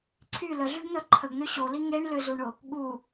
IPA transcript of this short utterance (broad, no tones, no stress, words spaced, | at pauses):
ǀʰy ləɮyɡn̪œ ǃʰəɡn̪ø ɕoli ŋeɳ lʏzuɳʊ | ɠu